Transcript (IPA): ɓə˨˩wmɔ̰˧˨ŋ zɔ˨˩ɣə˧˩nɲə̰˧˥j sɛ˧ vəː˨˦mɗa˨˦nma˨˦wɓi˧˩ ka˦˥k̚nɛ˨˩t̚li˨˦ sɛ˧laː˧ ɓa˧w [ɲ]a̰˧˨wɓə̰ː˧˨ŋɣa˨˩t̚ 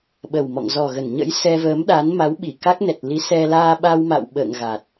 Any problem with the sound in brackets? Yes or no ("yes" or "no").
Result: yes